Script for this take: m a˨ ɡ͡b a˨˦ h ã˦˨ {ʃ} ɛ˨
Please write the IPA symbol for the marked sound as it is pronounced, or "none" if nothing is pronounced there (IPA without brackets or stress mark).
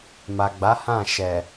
ʃ